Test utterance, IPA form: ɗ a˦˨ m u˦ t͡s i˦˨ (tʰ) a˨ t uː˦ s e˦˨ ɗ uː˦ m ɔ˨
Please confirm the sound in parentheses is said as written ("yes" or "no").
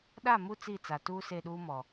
no